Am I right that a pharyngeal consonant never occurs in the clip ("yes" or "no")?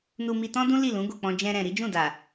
yes